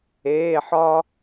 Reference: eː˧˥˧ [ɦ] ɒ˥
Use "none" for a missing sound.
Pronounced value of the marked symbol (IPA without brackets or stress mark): ħ